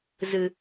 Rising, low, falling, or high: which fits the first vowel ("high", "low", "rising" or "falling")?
low